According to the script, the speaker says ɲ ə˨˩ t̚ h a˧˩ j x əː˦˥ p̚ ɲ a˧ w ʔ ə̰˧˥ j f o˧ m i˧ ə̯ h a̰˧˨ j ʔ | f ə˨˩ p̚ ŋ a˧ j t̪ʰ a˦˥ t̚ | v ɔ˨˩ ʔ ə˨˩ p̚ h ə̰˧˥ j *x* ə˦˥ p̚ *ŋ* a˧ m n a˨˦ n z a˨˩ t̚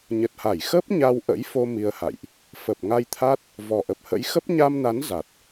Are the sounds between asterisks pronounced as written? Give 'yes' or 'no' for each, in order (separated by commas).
yes, no